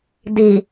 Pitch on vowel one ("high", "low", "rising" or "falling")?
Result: low